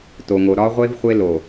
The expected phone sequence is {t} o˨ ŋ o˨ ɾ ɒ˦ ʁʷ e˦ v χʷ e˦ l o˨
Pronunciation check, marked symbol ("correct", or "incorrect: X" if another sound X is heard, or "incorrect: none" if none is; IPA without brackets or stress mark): correct